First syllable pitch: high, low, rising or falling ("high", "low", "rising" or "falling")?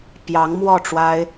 rising